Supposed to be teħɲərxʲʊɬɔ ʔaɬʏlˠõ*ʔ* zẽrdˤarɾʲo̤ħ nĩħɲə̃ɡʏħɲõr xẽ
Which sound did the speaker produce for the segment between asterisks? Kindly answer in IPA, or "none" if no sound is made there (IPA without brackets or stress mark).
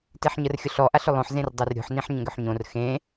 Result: ħ